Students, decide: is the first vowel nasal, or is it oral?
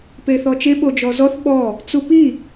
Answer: oral